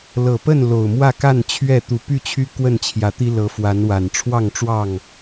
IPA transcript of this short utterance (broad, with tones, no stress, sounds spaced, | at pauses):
l ɤ˨˩ p ə˥˨ n l o˨˩ ʊ̯ m w ä˥˨ k a˥˨ n t͡ɕʰ ɥ ɛ˥˨ t̪ u˨˩ p y˥˨ t͡ɕʰ y˦ k w ə˥˨ n t͡ɕʰ j ä˨˦ t̪ i˦ l ɤ˨˦ f w a˨˦ n w a˨˩ n ʈ͡ʂʰ w ɑ˥˨ ŋ ʈ͡ʂ w ɑ˥˨ ŋ